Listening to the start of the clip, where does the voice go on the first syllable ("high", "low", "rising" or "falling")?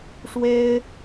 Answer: high